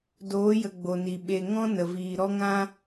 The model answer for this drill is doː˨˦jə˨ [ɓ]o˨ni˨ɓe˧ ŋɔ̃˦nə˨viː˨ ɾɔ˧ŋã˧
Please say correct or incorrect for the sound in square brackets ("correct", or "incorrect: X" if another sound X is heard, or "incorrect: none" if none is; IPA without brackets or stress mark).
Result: incorrect: ɡ͡b